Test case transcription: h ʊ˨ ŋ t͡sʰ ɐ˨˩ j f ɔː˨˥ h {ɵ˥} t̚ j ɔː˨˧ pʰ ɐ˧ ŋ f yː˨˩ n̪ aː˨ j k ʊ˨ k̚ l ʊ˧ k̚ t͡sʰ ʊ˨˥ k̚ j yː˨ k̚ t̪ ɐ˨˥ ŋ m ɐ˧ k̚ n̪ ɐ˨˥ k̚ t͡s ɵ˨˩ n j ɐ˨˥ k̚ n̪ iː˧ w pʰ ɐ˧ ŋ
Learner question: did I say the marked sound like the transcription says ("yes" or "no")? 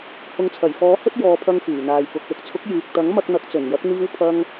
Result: yes